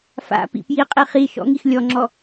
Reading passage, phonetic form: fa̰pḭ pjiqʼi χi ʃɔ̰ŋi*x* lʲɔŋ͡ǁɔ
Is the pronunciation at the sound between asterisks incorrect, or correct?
correct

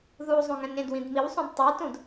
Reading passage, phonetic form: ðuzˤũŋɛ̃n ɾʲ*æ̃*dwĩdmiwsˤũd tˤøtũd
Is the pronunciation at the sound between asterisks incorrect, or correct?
incorrect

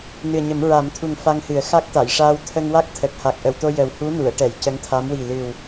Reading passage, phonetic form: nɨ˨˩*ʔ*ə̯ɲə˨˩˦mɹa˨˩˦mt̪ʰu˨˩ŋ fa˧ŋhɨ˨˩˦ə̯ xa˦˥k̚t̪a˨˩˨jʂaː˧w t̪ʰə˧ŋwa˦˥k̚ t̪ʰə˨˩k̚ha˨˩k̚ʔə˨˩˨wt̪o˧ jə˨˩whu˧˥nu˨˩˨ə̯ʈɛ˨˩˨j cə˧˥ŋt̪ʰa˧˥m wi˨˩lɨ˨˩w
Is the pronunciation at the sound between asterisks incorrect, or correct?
incorrect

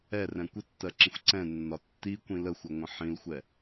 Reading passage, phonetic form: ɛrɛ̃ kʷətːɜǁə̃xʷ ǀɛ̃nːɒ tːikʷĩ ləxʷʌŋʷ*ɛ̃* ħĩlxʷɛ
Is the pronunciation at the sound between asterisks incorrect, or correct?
incorrect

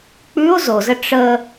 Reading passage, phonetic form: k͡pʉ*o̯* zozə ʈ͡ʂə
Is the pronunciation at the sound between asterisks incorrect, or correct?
correct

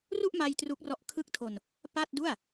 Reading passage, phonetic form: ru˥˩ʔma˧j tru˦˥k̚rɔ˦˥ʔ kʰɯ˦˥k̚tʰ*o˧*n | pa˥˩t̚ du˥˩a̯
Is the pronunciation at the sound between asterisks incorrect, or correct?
correct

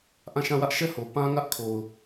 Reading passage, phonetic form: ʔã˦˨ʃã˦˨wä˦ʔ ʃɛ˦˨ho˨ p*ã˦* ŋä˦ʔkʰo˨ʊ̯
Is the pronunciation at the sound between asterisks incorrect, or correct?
correct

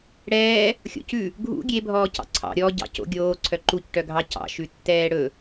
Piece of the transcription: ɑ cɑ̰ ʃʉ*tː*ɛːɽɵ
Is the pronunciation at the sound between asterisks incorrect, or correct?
correct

